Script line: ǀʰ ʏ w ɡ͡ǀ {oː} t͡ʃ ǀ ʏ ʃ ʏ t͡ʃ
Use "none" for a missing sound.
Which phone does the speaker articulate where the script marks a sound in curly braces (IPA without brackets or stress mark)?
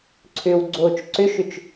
oː